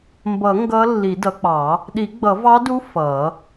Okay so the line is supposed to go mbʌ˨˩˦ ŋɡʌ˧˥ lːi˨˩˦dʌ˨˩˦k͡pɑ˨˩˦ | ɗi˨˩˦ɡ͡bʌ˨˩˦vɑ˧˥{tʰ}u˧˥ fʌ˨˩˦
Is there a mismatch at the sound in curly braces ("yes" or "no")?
yes